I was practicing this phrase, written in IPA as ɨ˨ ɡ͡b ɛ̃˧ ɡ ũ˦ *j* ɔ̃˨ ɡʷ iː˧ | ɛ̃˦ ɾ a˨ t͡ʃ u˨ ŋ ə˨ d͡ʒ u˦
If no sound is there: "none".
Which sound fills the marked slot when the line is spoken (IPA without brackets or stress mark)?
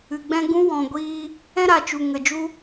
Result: w